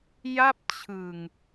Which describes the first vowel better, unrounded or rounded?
unrounded